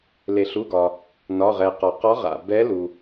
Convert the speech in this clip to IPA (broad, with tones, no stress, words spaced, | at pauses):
le˩ɬu˩˧˩ɡɒ˩ | nɒ˩˧˩ʁɛ˩ qɒ˩qɒ˧˥ʁa̰˩ bɛ˧˥lu˩